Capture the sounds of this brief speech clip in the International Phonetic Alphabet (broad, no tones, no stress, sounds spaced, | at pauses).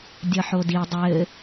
dʲ ʌ ħ o d i dˤ ɘ